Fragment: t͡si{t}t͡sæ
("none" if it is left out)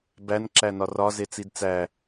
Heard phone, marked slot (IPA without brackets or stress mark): d